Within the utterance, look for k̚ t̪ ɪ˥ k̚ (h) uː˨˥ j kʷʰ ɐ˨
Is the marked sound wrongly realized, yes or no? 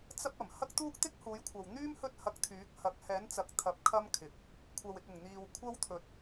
no